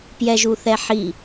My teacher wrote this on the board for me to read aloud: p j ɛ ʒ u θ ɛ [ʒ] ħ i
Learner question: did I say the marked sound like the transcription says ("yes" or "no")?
no